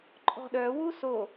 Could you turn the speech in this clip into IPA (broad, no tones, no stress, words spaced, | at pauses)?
ǃʼɔ̤ɗœwu so